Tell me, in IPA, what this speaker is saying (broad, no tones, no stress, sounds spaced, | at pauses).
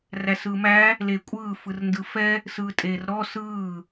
r æ s ɯː m æ | l e kʷʼ ɯː f ɯ r n d ɯ f ɛ | s ɯː tʼ eː r ɾ ɔ s ɯː